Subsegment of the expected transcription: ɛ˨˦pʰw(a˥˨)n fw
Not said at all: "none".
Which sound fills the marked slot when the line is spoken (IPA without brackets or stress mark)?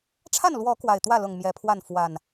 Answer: a˥˨